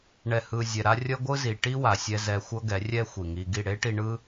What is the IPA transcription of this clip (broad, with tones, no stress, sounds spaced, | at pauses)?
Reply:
ɳ ɛ˨ h ɯ˨ zʲ ɛ˨ ɾ a˧ rʲ ʌ˦ ɡʷ ɯ˦ z i˨ ʈ i˦ w a˨ sʲ ɛ˧ z ɛ˧ xʷ ʌ˦ ɡ ɛ˨˦ rʲ ɛ˦ xʷ i˨ ŋ i˧ ɡ i˦˨ ɽ e˦ ʈ i˧ ɳ ɯ˦